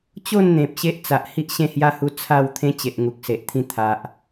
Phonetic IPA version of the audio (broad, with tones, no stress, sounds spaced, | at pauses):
t͡ɕ o˥˧ n n̪ ẽ˨ p̚ ɕ e˦ ʔ t͡s a˨ ʔ h i˦ ʔ ɕ ẽ˥˧ h j a˦ h u˧ t͡sʰ a˥˧ w t̪ʰ ẽ˦ t͡ɕ e˨ ʔ ŋ u˨ k̚ s e˨ ʔ t̪ʰ ĩ˧ t̪ʰ a˨ ʔ